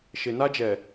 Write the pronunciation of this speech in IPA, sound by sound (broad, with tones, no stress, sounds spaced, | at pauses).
ʃ ɪ˨ n a˦ d͡ʒ ɛ˨